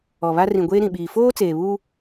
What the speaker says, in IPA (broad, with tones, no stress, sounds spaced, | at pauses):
ɔ˨ β a˦ r ĩ˨ ɡʷ eː˦ ɾ ĩ˨ ɓ iː˨ f oː˦ t͡s eː˨ β uː˦